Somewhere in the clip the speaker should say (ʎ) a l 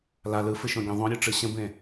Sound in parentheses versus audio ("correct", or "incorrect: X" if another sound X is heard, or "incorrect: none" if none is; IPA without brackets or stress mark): incorrect: l